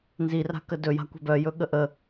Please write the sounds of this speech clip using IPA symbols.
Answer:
n z i r a̤ k ə d ɵ j a̤ kʷ ɛ̤ b œ j ɵ ɠ ə ʔ ə

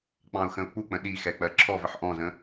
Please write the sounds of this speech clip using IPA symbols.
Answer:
k͡p ɑ̃ ʊ̯ x ə̃ ʊ̯ k͡p u k͡p ə̃ ɗ i x ɛ k͡p ɜ ǁʰ ɔ v ə ħ ʔ ɔ̃ z ə̃

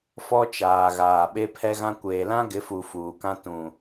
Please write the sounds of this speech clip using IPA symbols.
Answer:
f ɔ˦ t͡ʃ aː˨ ɣ aː˨ ɓ e˦ pʰ ɛ˦ ɣ ã˦ kʷ eː˨ l ã˦ ɡ ɪ˨˦ f u˨ f uː˨ k ã˦ t ũ˨

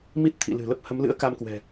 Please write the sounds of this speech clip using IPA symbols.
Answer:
m i˦˥ t̚ t̪ʰ ḭ˧˨ l ɨ̤˨˩ l ə˦˥ p̚ h ə˨˦ m l ɨ̰˧˥ ə̯ k a˧ m k w ɛ̤˨˩

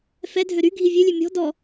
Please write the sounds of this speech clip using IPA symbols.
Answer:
f ɛ dʱ ø ɾ y ɡʱ i vʲ ø lʲ ø mʲ ɔ̤ d ɔ

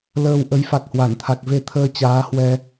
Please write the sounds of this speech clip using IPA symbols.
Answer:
l əː˧ w ʔ ə˨˦ j f a˨˩ k̚ h w a˧˩ n t̪ʰ a˨˩ k̚ v e˧ t̪ʰ əː˧ t͡ɕ aː˨˦ h w ɛ˧

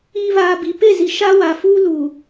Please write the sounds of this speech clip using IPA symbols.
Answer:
iː˨ β aː˨ b i˨ p e˦˨ z i˨ ʃ a˦ w aː˨ f uː˦ l uː˨

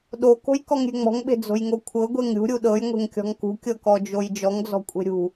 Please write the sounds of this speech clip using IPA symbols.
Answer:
ɗ o k o̤ j k ɔ ŋ ɾʲ e̤ ŋ͡m ɔ̤ ŋ ɓ e̤ d͡z o̤ j ŋ o kʷʰ ɤ ɡʷ e ŋ ɾʲ ṳ ɾʲ u ɗ ɤ j ŋʷ e̤ ŋ kʲ ɔ̤ ŋ k ṳ kʲ ɤ k ɔ d͡ʒ o j d͡ʒ ɔ ŋ d͡z ɔ̤ kʷʼ e̤ ɾʲ ṳ

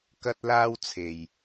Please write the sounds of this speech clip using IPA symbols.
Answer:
k ɐ˥ t̚ l aː˥ w t͡sʰ e˨˩ j

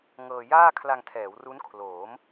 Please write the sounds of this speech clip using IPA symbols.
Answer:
ŋ ɤː˧ j aː˥˩ kʰ l a˧ ŋ tʰ ɛː˩˦ w r u˦˥ n kʰ l oː˩˦ m

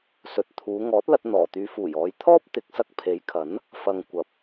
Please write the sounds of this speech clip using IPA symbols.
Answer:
s ɵ˨ t̚ t̪ʰ uː˨˧ ŋ ɔː˨˥ t̚ l ɐ˧ t̚ n̪ ɔː˨˩ t̪ yː˨˧ f uː˨˩ j ɔː˨˧ j t̪ʰ ɔː˥ p̚ t̪ ɪ˨˥ k̚ s ɐ˧ k̚ pʰ e˨˥ j kʰ ɐ˨˥ n | f ɐ˨ ŋ kʷ ɐ˨˥ p̚

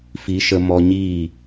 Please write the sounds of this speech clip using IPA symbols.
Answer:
f i˨˦ ʃ ə˧ m ɔ˧ ɲ i˦˨

